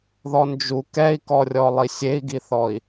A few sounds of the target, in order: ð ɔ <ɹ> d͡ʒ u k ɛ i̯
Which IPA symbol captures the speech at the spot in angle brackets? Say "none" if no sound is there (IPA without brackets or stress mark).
n